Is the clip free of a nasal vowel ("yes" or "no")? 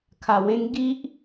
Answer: no